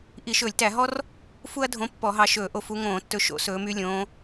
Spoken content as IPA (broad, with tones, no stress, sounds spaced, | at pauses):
ʔ i˧˩˧ ʃ ɵː˧˩˧ lʲ t æ˧˩˧ ɦ ɔ˥ r | f u˥ ɐ̯ dʱ õ˧˥ pː ɔ˧˩˧ ɦ ɑ˧ ʃ ɵː˧˩˧ ʔ o˧ f u˧˥ ŋ õː˧˩˧ tː ɵ˧ ʃ o̰˧˥ s ɵː˧˥ m y˥ lʲ õː˧˥